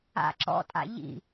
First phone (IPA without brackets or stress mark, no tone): a̰